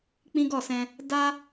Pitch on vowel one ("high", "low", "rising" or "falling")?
high